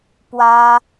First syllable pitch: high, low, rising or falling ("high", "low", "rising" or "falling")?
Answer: high